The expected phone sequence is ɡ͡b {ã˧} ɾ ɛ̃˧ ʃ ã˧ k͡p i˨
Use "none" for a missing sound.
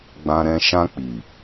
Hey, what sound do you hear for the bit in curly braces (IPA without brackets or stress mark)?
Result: ã˧